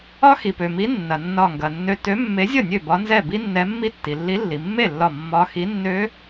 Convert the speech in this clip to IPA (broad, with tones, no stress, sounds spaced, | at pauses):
ɒ˦˥ x i˩ p ø˩ m i˨˥ nː ɐ˩ nː ɒ˧˩ ŋ ɡ ɐ˩ nː ø˧ t ø˨˥ mː e˨˥ zʲ ʌ˥˩ nʲ ø˥˩ b ɒ˨˥ n z ɛ˥˩ b i˦˥ nː ɛ˨˥ mː i˦˥ tː i˩ lː i˨˥ lː i˩ mː e˥˩ lː ɒ˧˩ mː ɒ˦˥ x i˨˥ nː ø˦˥